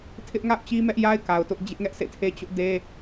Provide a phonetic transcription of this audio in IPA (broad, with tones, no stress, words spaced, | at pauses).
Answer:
tʰɪ˦ʔ ŋa̰˦˨ʊ̯ t͡ɕi˦mɛ˦ʔja˦ɪ̯ ka˨ʊ̯tʊ˦ʔ d͡ʑɪ˦ʔŋɛ˦ʔsḛ˦˨tʰe˦ t͡ɕʊ˦ʔde˦